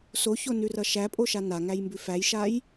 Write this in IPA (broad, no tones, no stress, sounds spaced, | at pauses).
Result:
s o ç o n ʉ r ʌ ʃ æ pʼ o ʃ a n a ŋ æ j m b ʉ f æ j ʃ a j